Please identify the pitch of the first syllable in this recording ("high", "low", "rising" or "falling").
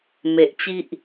low